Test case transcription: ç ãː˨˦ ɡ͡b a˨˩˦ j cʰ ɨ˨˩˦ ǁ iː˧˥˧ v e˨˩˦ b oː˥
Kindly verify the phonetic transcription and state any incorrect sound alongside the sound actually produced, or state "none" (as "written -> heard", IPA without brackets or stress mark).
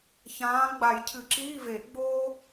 b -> ɡ͡b